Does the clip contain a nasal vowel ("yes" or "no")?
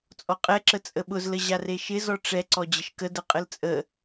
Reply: no